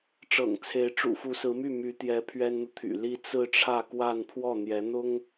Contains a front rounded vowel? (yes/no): yes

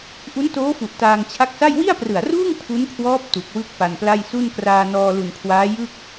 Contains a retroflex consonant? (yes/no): no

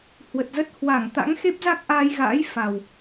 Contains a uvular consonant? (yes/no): no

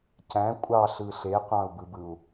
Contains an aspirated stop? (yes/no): no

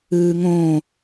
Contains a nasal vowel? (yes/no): yes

